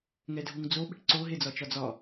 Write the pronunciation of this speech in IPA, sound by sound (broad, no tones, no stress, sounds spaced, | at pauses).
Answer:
ŋ ɛ dʱ u ŋ d͡z o ɓ ə̤ ʈ ǀ o ɦ e d͡z ɒ t͡ʃ ɒ d͡z ɒ